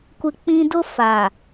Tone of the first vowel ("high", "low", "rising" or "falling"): high